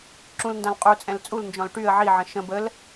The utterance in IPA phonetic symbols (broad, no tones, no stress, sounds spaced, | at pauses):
ǁ ũ l n d ã l qʼ u t͡sʼ ɛ̃ l t͡sʼ u l n d͡ʒ ɔ̃ l ʈ y ə̯ ʕ i ʕ ə̃ ʃ ə̃ b ə l